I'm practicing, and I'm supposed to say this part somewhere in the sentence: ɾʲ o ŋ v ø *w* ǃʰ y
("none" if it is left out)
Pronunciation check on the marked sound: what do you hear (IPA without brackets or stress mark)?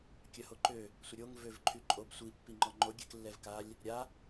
v